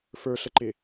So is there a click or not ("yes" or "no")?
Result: yes